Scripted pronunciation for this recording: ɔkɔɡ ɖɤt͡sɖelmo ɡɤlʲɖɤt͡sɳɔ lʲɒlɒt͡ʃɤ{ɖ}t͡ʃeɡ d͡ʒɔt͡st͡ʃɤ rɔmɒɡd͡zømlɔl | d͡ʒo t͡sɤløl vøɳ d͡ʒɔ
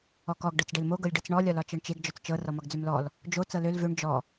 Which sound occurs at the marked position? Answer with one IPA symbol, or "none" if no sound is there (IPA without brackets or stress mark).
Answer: ɳ